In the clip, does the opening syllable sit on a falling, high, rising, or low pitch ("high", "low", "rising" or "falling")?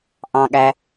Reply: low